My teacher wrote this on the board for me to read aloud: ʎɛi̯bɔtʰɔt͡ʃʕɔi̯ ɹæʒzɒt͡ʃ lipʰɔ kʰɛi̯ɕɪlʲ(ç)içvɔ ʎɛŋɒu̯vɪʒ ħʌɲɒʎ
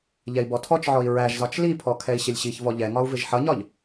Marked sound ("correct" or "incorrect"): incorrect